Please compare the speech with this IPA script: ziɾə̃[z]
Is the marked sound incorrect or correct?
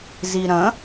incorrect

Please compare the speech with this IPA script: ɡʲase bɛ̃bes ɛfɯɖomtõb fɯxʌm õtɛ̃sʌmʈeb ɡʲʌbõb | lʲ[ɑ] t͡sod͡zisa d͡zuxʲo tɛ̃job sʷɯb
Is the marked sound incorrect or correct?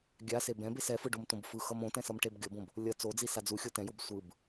incorrect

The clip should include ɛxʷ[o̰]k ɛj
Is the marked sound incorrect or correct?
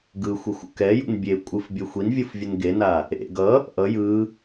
incorrect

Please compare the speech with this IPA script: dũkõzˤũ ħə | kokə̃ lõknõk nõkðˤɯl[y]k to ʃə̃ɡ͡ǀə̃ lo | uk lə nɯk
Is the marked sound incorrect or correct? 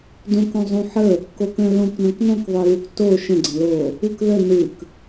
incorrect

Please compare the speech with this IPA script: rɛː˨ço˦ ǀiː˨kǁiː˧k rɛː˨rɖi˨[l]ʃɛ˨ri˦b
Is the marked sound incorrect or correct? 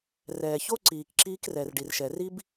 incorrect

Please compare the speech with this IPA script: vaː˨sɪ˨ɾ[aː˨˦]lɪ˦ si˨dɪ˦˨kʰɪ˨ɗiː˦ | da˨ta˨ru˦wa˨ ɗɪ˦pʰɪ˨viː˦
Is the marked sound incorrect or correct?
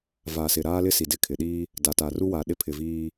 incorrect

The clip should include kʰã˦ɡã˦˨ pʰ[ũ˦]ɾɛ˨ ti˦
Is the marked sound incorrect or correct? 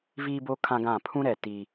correct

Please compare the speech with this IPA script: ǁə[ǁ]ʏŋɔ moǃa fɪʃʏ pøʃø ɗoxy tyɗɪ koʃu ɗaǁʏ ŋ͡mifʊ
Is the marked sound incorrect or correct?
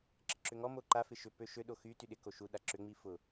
correct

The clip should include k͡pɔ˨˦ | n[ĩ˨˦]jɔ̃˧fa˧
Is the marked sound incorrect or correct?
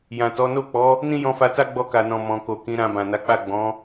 incorrect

